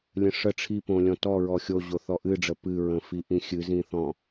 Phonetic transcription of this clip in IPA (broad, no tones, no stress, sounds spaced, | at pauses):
lʲ ə̃ ʂ ə ʈ͡ʂʰ i p õ lʲ ɔ̃ t ɔ ɹ ɔ xʲ o ʑ o θ ɔ ʔ ɨ ɖ͡ʐ ə p ɨ ɹ ə̃ f i ʔ ĩ xʲ ɨ z ĩ θ ɔ̃